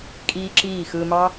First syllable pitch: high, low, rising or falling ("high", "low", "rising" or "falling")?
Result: high